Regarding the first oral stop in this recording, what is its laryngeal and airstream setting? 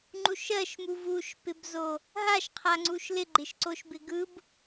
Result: click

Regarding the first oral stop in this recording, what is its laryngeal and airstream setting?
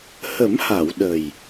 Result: implosive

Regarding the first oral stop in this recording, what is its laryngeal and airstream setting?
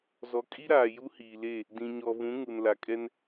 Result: ejective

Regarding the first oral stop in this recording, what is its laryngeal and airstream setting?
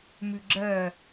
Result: click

